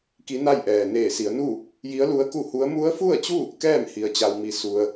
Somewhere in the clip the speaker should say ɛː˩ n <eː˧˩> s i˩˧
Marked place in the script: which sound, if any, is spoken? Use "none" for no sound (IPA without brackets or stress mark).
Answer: eː˧˩